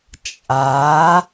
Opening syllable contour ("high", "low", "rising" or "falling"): rising